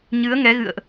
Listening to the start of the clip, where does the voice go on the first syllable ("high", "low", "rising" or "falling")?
rising